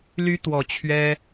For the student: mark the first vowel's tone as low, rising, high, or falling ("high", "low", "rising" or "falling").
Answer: rising